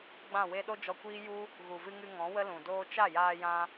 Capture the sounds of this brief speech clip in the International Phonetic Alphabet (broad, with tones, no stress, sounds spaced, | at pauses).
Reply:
ɡ͡b ã˦˨ w e˦ ɗ o˦ d͡ʒ ɔ˧ kʷ iː˦ j u˦ | ɣ u˨ v ɨ˧ ŋ ɨ˧ ŋ ɔ̃˨˦ w ə˦ l ũ˨ d oː˦ t͡ʃ a˦˨ j aː˧ j ã˧